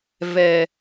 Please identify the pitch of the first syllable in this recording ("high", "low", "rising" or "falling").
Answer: low